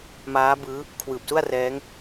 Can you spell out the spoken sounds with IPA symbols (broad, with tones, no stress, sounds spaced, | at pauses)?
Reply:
m aː˦˥ b ɯː˦˥ | kʰ w ɯː˨˩ p̚ s u˥˩ a̯ r ɛː˦˥ ŋ